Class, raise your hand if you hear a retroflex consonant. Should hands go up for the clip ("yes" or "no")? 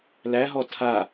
no